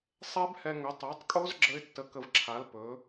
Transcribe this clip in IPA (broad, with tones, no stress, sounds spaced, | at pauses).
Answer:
sˤ ɛ˦˥ b h ɛ˧ ŋ ɵ˩˥ tˤ æ˩˥ tˤ kʼ o˦˥ z ɡ͡ǁ ə˦˥ ɪ̯ tː ə˧ k ə˧ v ǁʰ a˩˥ l p ɵ˩˥